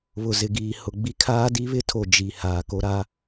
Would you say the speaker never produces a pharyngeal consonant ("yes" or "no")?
yes